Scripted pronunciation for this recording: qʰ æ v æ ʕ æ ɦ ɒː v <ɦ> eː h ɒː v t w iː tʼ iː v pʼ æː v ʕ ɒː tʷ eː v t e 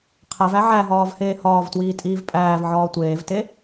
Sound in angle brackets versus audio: incorrect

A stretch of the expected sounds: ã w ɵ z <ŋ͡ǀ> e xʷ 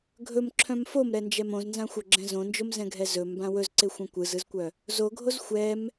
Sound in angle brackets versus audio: incorrect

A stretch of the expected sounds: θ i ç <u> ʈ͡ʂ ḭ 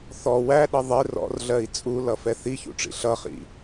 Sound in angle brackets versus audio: incorrect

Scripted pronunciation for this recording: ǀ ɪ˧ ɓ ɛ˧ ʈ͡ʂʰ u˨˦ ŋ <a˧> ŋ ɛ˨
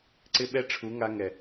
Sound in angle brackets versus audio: correct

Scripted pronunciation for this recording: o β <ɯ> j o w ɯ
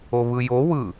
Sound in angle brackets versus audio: correct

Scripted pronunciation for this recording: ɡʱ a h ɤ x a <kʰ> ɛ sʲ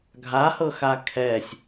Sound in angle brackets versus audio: correct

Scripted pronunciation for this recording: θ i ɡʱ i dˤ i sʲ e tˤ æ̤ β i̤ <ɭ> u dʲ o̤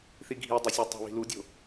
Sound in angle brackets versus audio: incorrect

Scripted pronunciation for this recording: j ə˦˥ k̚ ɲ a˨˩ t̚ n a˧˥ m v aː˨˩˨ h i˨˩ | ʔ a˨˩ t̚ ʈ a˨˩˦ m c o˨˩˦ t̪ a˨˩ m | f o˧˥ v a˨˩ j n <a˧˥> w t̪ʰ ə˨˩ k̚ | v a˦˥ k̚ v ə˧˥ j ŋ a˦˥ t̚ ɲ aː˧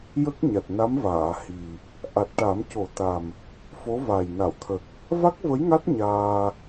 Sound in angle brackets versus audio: incorrect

